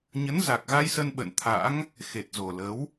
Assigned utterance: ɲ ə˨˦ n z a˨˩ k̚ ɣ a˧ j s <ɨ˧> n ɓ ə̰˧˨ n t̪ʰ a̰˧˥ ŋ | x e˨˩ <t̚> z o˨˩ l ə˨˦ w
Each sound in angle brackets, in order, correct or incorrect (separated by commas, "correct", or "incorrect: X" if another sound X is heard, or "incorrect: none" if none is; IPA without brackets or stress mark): incorrect: ə˧, correct